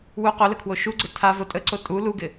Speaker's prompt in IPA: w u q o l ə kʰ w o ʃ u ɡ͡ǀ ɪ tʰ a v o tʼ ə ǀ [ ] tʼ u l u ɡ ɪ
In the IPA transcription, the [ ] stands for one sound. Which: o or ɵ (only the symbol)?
o